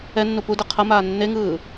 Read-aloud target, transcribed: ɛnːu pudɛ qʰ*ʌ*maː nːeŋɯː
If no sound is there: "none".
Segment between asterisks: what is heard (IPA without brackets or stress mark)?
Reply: ʌ